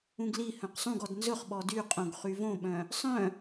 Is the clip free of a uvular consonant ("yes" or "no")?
no